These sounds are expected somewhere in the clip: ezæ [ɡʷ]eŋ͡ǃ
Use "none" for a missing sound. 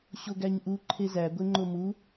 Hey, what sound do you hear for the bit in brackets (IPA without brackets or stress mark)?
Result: ɡʷ